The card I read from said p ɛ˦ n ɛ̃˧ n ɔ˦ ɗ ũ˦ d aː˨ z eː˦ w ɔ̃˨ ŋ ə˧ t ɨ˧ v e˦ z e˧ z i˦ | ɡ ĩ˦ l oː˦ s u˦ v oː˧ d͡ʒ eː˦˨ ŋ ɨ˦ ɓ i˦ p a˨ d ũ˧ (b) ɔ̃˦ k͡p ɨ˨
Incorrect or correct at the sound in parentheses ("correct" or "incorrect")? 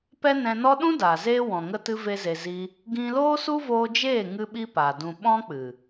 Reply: incorrect